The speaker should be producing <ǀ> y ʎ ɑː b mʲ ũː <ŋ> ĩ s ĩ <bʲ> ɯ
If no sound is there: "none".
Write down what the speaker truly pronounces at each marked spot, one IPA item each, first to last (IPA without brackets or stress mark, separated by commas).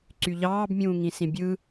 ǀ, ŋ, bʲ